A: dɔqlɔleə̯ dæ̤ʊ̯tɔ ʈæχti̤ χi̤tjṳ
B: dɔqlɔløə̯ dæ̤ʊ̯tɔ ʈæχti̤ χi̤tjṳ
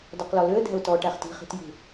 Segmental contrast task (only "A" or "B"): B